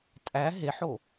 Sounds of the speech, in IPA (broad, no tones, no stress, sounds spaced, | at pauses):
tʼ æ ɦ e ħ o